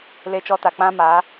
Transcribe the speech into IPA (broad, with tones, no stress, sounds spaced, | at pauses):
l e˧ t͡ʃ ɔ˧ t a˨ k͡p ã˦ m a˨˦